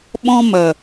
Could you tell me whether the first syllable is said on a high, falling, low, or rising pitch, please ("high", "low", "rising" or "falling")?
high